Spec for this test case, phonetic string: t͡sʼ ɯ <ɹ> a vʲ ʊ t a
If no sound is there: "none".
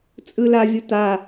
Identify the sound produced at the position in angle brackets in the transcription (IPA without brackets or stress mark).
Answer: l